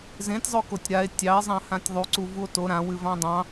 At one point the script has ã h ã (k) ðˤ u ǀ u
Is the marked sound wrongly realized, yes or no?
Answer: yes